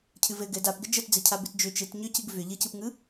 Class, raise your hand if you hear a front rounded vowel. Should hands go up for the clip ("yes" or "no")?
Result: yes